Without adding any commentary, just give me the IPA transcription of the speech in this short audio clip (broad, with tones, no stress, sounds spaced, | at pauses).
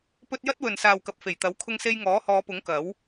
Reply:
p ɵ˥ t̚ j ɐ˥ t̚ w ɵ˨ n s aː˨ w k ɐ˨ p̚ f e˨˩ j t̪ ɐ˨˥ w kʰ ʊ˧ ŋ s e˧ j ŋ ɔː˨˥ h ɔː˨˧ p ʊ˨˥ ŋ k ɐ˨˥ w